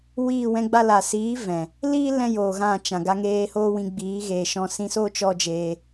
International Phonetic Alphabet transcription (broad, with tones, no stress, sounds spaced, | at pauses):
w iː˦˨ w ɛ̃˦ ɡ͡b a˦ l a˨ s iː˨˦ v ɛ̃˨ | l iː˦ l ɛ̃˦ j oː˨ ɣ ã˦˨ t͡ʃ ã˨ ɡ a˧ ŋ eː˧ h oː˦ w ĩ˧ ɡ͡b iː˨˦ ɣ eː˨ ʃ ɔ̃˧ s ĩ˧ s oː˦ t͡ʃ ɔ˦ d͡ʒ eː˧